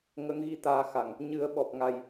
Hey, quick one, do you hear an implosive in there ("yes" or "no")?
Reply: yes